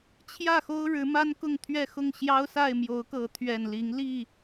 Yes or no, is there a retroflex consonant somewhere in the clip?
yes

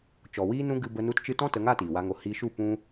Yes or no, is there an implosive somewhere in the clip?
no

